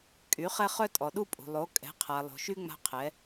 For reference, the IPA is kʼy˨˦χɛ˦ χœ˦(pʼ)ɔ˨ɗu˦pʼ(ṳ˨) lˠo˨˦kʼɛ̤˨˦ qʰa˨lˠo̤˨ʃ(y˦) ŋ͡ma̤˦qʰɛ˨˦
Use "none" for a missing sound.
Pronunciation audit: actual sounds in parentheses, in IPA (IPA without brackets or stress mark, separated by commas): tʼ, ṳ˨, y˦